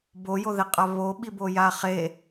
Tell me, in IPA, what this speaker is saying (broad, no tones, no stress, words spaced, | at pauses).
bojoðeqʼa βo ɓibojaχe